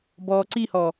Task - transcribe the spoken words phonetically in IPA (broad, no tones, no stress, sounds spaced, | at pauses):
b ɔː ǀ i h ɔ